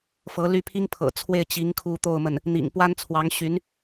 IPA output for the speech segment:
f ɤ˧˥ l y˥˩ pʰ i˥ ŋ pʰ ɤ̰˨˩ t͡sʰ w e˥˩ ɪ̯ t͡ɕ i˧˥ ŋ kʰ u˧˥ t̪ o˥˧ ʊ̯ m ə˥˩ n | n̪ ḭ˨˩ ŋ p w a˥ n t͡sʰ w ɑ˧˥ ŋ ɕ y˧˥ n

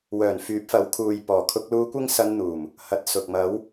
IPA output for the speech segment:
w œː˨˩ n f yː˨˥ p̚ f ɐ˨˥ w kʰ uː˨ j p ɔː˨˩ kʰ ʊ˧ k̚ l uː˧ kʷ ɪ˥ ŋ s ɐ˧ n n̪ uː˨˩ m | h ɐ˨˥ t̚ s ʊ˨ k̚ m ɐ˨˧ w

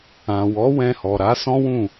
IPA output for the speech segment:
ã˨ w ɔ˨˦ w ɛ̃˧ h ɔ˨ ɾ a˨˦ s ɔ̃˦ w ũ˦˨

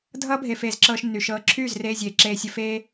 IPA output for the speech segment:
dʱ ʌː˦ bʱ e˧ f eː˧ z ǁ ɤː˧ ʃ nː y˨ ʃ ɤː˧ ǁʰ yː˦˨ z r eː˧ zʲ eː˨ ǁ eː˧ sʲ ə˧ f eː˧

